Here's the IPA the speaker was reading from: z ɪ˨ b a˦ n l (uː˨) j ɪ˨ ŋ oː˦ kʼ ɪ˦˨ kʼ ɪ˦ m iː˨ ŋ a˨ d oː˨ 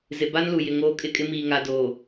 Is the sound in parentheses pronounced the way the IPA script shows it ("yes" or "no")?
no